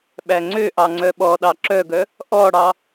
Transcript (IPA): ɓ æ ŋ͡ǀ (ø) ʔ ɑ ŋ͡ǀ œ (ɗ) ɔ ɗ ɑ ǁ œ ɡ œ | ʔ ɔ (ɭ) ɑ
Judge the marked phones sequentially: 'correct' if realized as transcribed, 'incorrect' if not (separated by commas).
correct, incorrect, incorrect